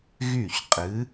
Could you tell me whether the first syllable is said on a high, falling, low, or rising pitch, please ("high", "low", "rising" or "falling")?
falling